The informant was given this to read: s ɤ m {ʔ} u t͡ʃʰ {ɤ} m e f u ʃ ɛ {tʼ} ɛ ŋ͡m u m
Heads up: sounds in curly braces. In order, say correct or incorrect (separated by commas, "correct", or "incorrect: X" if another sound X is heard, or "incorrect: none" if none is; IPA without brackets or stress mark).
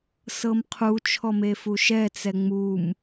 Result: incorrect: qʰ, incorrect: ɔ, incorrect: t͡s